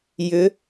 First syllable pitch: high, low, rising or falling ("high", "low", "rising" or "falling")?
rising